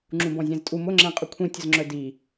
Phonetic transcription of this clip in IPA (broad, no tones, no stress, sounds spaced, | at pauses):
ŋ͡ǁ ũ b ɔ̃ zʲ ɛ̃ z tʼ u m ʊ ŋ͡ǁ ɛ̃ qʼ ʊ kʷʰ ĩ tʲ ʊ z ŋ͡ǁ œ d i